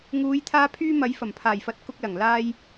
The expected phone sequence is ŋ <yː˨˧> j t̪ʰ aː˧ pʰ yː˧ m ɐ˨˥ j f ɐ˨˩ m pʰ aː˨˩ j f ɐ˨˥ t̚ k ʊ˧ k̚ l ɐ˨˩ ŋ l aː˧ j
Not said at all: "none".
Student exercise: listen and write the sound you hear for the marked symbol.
uː˨˧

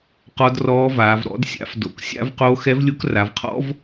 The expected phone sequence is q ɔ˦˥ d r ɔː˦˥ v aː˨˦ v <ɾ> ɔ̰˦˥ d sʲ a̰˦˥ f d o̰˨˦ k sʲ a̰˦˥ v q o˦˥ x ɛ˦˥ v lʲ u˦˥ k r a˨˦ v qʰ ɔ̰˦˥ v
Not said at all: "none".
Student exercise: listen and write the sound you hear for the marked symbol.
ɾ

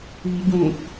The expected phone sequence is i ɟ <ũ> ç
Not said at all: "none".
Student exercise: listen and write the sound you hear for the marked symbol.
ũ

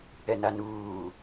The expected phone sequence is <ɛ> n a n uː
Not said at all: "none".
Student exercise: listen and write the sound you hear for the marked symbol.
ɛ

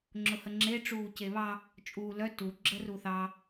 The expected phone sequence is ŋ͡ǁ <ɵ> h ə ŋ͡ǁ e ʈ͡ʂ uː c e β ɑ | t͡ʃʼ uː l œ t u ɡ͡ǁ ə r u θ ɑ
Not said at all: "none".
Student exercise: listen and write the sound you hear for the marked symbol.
ʊ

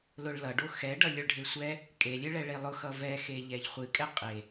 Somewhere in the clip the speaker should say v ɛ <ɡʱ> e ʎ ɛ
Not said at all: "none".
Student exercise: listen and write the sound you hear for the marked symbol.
x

